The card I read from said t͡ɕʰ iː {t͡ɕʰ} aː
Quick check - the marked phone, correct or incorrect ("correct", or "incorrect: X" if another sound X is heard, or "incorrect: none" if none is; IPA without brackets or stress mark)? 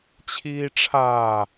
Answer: incorrect: ʈ͡ʂʰ